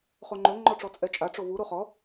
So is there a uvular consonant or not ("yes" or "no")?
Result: yes